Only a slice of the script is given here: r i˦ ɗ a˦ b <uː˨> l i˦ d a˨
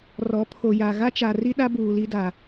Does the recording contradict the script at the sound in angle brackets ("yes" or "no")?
no